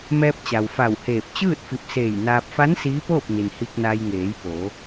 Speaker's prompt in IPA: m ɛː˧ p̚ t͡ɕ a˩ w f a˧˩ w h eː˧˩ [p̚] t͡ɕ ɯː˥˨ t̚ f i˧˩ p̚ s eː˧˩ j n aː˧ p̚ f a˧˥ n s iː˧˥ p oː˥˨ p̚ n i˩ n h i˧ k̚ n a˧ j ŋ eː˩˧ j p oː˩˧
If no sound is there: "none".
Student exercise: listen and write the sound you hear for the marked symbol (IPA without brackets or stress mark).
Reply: p̚